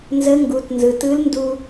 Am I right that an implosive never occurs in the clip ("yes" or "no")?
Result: yes